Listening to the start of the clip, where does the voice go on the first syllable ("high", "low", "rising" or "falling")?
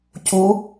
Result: rising